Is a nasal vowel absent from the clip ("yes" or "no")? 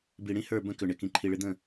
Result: no